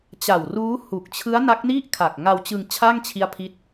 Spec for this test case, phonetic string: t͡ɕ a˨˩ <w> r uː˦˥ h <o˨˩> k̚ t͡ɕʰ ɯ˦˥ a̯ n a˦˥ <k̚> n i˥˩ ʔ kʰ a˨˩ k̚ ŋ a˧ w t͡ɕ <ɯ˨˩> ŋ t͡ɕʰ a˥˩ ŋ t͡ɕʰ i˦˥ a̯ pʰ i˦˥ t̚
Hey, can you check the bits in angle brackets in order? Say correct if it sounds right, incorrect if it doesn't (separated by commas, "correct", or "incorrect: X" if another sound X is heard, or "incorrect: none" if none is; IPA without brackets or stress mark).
correct, incorrect: u˨˩, correct, incorrect: ɯ˧